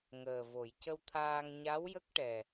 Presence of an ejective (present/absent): absent